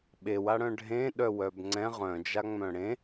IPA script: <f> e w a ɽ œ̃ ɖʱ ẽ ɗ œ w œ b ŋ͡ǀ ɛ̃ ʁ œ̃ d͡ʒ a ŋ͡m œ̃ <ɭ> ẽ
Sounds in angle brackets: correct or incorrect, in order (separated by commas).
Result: incorrect, incorrect